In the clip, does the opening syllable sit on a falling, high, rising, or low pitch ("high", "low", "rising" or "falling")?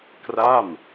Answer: falling